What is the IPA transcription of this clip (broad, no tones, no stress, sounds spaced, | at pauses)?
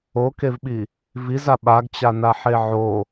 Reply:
o k e v ɓ i | v i z a ɓ a ɡ t͡ɕ a n a ħ e ʕ o